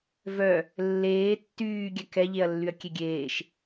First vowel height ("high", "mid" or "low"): mid